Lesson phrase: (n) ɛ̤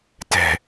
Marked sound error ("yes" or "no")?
yes